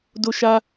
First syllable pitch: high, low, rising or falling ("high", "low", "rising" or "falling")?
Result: high